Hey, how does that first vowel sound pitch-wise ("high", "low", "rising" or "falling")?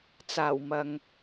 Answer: low